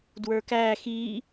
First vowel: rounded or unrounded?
unrounded